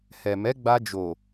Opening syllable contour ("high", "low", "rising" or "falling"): low